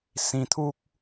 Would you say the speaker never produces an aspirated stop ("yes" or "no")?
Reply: no